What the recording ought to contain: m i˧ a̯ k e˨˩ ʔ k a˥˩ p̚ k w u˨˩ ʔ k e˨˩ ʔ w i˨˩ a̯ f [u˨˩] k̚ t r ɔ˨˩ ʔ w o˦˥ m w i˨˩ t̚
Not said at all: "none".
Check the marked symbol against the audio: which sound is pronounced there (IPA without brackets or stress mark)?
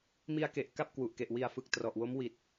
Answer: ɯ˨˩